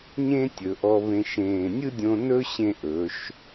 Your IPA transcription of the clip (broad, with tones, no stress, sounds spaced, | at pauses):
ɲ ẽ˥ tʲ ɵ˩˧ ʔ ɔ˧ β ẽ˧ ʃ ẽː˧˩ nʲ ɯ˥ dʲ õ˧ n ɵ˥ ɕ ẽ˥˧ ʔ ɵ˩˧ ʃ